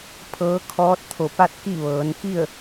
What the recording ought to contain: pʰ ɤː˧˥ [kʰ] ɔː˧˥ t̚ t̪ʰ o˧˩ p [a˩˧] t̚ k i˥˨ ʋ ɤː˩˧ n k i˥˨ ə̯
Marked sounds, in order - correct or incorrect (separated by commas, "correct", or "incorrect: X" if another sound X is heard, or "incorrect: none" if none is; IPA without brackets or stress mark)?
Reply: correct, incorrect: a˥˨